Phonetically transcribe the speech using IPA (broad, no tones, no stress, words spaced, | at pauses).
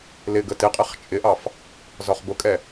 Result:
lɪ ɡətɪqʼɛχ t͡ʃʼɪʔɑf | zɒχbʊkʼɛ